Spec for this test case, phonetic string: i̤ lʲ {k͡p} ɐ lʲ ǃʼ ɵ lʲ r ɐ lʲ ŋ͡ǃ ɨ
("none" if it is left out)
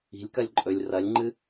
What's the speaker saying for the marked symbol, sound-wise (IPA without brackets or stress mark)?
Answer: k